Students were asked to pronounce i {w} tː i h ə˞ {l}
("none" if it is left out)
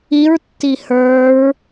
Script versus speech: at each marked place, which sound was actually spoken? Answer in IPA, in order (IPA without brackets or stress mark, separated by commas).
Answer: ɹ, ɹ